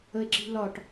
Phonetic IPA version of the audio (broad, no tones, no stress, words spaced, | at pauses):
əe̯ǁi̤lɒʈ